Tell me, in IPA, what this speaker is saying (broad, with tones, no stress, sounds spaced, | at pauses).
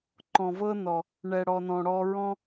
ǃ ɔ̃˨ v ɤ˦ n ɔ˨ | ɳ ɛ˨ ɽ ɔ˨ n ɔ̃˨ ɽ ɔ˧ ɹ ɔ̃˦